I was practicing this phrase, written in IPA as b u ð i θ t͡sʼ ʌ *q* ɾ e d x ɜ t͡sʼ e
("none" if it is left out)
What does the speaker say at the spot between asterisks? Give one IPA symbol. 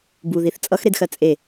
x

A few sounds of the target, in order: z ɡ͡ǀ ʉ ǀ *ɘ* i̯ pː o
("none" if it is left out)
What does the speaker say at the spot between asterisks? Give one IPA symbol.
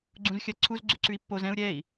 ʉ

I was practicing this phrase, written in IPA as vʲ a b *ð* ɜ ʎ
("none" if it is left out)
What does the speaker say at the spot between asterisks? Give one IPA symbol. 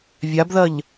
ð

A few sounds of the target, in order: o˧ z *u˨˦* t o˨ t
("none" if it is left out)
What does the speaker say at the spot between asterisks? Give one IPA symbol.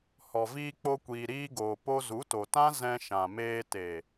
u˨˦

